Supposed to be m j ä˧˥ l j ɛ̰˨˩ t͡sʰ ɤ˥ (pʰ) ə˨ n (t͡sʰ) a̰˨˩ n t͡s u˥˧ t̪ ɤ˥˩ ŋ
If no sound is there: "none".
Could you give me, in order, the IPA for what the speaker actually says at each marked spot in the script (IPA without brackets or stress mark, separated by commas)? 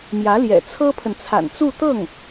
pʰ, t͡sʰ